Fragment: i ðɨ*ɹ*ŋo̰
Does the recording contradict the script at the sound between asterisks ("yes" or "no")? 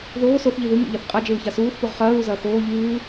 yes